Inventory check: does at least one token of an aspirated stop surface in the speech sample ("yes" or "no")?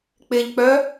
no